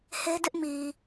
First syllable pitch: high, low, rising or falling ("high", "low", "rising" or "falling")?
high